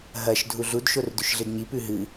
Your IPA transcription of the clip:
ɦɐʃ dʱuɮud ʃordʉʃɮɨdɲi pʉɦɨ

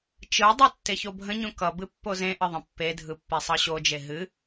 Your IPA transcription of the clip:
t͡ʃɯdˤʌ tːeçobʱə̃ɲõ kʌ bɨpːozẽʔə ðˤə̃pːedʱɯ pːesˤɤɕod͡ʒe ɦɨ

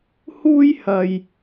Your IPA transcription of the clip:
huː˥jhɐ˧j

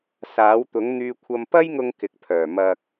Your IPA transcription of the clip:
saː˨˥wt̪ʊ˨˥ŋ n̪yː˧kʷʰɐ˧m pɐ˥jŋʊ˧ŋ kɪ˨k̚pʰœː˨˩ mɐ˨k̚

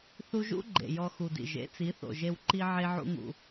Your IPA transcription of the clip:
θu˧ʒṵ˦ ɡ͡ǃḛ˨jɔ˧xu˨dḭ˨ ʒḛ˨˦t͡si˨˦θo̰˨ʒe˧w ǃi˦ʕe˦ ʕṵ˦ŋṵ˧

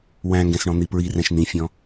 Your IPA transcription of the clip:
wæ̃ŋɡɛ̃sɳɔ̃ n̪ipɹirɛ̃ʃ nĩfʲɔ̃

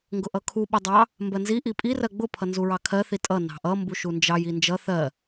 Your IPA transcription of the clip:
ŋɡʊʔʌkʰu ɓʊdˤɑ | mbɜnzi ʔipʼi rɜɡ͡bʊ pʰʌnzuɹɑkʰɜ θitʼʌ nɑ̤ʔʌ mbuʃund͡ʒɑj ind͡ʒʌ θɜ

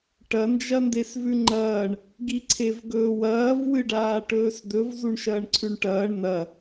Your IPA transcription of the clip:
ʈɐ nd͡ʒɐndesvʉŋ͡ǃɐːɳ | ɡiǀʰevɡɵːwɐːv wɨɖaːʈɵːsd̪ɵv zuɳʃɐːɳǀʰʉɳʈɐːɳ nɐ

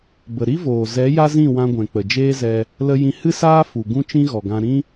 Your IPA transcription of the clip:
bə˨ɾi˦voː˨ zɛ˨˦ ja˦zĩ˦˨wã˧ɡʷɛ̃˨ k͡pə˨d͡ʒeː˦zɛ˧ | lə˧ jĩ˧hɨ˦saː˦ fu˨ ɡũ˦t͡ʃĩ˦ ɣɔ˨ɡã˧ ɾĩ˦

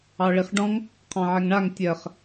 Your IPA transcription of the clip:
ɑɭiχɖɔ̃ŋ | qʰɑ̃ʕɛŋɳaŋ tʲɜχ

